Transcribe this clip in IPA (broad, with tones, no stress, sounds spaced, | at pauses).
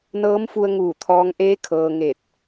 n ɤː˧˥ m f u˧ ə̯ ŋ uː˧˩ t̪ʰ ɔː˧ ŋ ʔ eː˧˥ kʰ ɤː˧ ŋ e˧˩ t̚